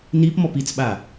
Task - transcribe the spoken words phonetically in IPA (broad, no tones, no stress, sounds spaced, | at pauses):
n i p m ɔ p i t͡s ɓ a